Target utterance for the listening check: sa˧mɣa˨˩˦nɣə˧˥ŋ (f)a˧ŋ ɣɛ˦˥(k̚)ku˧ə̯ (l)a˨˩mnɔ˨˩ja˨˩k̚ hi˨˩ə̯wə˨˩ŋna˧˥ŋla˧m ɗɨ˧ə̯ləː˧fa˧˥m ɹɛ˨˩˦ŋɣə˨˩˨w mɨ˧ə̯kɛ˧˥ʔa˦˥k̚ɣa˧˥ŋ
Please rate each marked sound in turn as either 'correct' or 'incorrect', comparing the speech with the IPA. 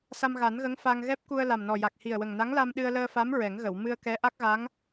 correct, incorrect: p̚, correct

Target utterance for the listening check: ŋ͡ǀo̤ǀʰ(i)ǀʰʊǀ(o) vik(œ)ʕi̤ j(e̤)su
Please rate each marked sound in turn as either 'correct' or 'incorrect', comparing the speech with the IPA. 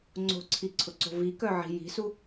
correct, incorrect: o̤, correct, incorrect: i̤

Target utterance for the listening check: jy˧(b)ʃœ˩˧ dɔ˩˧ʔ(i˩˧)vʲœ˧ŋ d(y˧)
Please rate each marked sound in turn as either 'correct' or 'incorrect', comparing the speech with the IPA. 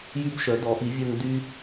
correct, correct, correct

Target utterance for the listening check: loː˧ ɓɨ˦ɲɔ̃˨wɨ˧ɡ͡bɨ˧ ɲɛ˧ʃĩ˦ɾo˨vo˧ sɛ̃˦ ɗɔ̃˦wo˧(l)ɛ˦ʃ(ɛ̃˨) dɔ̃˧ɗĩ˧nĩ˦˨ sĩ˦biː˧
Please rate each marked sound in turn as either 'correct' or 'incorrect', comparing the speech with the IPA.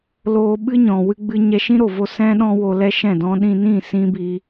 correct, incorrect: ɛ̃˦˨

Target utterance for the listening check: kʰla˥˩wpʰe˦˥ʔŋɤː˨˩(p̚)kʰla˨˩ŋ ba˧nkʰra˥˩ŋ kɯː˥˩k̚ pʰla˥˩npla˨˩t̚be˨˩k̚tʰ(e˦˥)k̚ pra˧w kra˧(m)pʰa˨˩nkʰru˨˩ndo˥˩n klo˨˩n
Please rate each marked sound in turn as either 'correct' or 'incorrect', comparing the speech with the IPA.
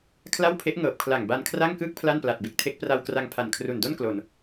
correct, correct, incorrect: ŋ

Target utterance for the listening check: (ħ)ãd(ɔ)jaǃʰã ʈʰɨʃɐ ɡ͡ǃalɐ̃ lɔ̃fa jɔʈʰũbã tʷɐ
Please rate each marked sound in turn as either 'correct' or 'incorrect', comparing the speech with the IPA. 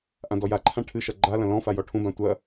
incorrect: ʔ, correct

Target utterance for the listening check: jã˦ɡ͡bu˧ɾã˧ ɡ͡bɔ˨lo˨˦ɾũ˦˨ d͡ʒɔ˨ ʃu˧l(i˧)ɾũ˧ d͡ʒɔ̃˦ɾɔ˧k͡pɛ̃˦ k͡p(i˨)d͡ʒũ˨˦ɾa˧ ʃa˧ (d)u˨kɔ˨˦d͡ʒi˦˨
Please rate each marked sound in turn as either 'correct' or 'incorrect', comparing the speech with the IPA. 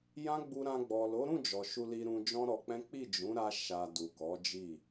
correct, incorrect: i˦˨, correct

